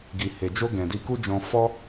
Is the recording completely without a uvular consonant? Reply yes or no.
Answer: yes